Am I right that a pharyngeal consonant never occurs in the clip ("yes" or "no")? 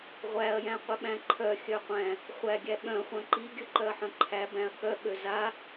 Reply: no